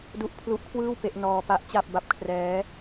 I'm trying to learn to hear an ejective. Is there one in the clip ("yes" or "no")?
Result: no